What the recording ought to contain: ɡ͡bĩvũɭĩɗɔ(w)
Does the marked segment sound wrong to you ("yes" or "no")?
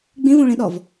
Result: yes